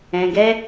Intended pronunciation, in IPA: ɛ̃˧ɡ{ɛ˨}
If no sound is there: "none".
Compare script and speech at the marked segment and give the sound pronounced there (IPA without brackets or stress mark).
ɛ˦